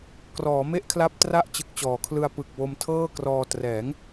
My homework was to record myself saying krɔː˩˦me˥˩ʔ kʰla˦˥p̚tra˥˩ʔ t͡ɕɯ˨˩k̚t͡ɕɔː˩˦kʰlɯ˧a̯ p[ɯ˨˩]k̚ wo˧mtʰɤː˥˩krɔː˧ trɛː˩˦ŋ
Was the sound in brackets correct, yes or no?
yes